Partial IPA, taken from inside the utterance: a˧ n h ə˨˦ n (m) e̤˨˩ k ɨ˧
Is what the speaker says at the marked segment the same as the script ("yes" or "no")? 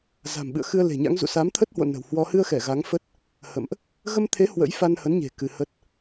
no